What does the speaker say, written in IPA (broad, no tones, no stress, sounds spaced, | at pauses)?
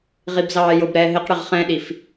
ʁ i b z ɑː j ʊ b ɾ ɛː ɦ ɪ q ɽ ɪ ʁ χ ɛ̃ ɗ i f